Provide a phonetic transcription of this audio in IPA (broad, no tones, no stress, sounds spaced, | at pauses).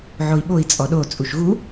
ʕ o i̯ ɓ o i̯ t͡sʼ ɔ ɗ o t͡sʼ u ʃ ɣ u